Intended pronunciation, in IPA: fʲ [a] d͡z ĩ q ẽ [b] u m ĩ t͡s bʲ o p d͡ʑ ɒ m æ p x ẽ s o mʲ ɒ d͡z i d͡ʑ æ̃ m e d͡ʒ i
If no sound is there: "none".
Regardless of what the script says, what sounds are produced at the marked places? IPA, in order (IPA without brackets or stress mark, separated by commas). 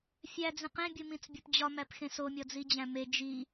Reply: æ, bʲ